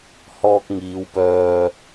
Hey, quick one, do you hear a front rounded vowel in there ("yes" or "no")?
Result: yes